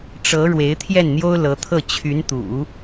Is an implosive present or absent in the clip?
absent